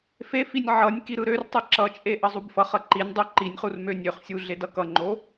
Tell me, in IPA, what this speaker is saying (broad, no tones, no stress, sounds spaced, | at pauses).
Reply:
f e f i nʲ ʕ ʌ nʲ k i ɾ ɯ ɾ ø r tˤ ɯ ǁ ʌ t͡ʃʼ e ʔ ʌ zˤ u b f ʌ χ ʌ ǃ i nʲ dˤ ø ǃ i nʲ χ u r m ø nʲ ø χ sʲ u ɮ e d ʌ k ʌ ŋ͡ǃ o